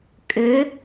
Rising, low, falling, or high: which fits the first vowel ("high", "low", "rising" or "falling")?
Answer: rising